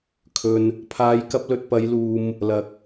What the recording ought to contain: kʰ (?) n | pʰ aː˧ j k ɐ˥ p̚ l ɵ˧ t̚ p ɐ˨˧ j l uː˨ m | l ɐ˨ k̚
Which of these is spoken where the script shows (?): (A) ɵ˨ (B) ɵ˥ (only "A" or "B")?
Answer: A